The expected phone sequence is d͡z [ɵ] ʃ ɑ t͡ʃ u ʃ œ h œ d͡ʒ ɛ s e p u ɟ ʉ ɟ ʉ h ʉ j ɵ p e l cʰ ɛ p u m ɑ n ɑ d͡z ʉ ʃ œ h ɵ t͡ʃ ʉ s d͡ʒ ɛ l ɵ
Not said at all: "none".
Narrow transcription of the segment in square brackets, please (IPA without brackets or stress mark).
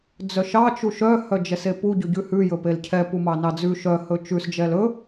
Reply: œ